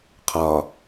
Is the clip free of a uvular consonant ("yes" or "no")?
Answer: no